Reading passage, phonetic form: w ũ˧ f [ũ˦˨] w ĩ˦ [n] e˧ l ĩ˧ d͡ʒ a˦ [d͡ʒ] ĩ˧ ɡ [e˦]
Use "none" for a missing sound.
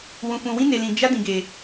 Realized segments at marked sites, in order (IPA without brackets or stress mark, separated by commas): ũ˧, n, d, e˧